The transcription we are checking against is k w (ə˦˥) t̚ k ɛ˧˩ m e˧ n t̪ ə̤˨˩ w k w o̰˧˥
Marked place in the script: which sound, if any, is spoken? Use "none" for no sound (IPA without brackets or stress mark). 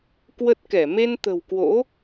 ə˦˥